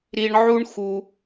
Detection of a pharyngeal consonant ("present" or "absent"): present